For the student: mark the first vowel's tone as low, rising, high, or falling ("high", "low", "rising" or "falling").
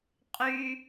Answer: high